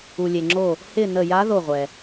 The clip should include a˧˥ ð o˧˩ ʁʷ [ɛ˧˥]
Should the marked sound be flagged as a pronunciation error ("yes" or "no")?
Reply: yes